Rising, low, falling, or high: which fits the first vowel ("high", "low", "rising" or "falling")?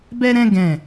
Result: high